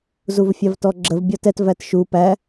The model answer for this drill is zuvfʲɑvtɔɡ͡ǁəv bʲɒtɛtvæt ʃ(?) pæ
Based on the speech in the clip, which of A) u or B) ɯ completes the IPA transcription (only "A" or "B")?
A